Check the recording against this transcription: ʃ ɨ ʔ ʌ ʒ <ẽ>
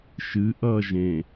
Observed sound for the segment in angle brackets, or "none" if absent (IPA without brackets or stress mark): ẽ